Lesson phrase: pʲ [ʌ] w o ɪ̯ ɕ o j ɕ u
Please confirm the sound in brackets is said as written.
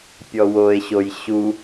no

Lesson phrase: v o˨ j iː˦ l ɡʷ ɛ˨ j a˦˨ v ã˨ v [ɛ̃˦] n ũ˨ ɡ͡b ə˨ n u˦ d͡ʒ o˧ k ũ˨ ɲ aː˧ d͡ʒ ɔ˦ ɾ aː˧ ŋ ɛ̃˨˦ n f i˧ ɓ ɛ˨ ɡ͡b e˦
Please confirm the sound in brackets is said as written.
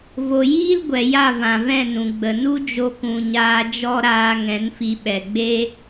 no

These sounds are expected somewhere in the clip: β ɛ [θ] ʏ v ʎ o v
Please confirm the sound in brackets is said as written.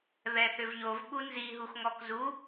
yes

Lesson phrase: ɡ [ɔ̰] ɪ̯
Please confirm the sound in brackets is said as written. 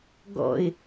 yes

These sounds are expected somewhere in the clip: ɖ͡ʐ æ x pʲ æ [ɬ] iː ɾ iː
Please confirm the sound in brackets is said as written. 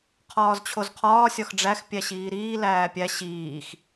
no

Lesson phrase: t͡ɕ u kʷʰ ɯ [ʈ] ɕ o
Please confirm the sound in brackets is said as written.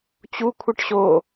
yes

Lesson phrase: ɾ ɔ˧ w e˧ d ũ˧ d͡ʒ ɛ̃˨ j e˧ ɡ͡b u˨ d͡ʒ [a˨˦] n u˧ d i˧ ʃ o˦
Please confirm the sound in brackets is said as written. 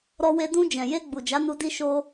yes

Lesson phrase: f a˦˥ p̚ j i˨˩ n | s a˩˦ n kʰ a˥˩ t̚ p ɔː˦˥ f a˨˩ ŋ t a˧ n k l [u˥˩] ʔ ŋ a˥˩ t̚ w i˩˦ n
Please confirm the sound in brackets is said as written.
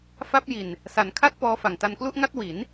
yes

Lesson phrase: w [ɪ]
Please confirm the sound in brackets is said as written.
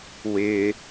yes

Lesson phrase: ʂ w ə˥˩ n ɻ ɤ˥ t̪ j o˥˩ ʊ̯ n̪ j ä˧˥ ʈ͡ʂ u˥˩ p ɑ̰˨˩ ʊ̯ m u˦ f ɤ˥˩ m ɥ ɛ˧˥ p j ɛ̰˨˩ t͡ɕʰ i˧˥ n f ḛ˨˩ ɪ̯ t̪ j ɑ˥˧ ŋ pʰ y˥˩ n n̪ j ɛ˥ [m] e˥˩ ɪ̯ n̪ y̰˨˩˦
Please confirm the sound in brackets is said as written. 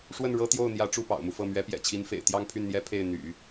no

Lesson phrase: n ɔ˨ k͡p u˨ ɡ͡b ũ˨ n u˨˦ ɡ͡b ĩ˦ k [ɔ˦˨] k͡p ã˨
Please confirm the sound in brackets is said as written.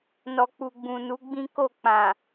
no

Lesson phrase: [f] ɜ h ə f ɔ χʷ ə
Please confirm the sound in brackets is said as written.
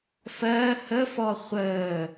yes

